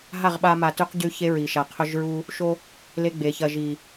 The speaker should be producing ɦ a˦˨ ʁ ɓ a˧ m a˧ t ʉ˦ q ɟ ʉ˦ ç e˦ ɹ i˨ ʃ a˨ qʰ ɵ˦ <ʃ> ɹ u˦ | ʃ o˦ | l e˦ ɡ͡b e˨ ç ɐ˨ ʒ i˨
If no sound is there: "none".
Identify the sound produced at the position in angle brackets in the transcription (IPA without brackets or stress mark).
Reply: ʒ